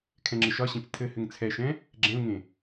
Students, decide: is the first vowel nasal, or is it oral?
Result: nasal